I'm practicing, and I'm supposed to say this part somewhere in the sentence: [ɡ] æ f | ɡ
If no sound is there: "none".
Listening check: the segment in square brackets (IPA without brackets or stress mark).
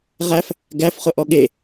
ʁ